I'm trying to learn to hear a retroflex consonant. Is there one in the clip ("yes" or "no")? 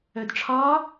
yes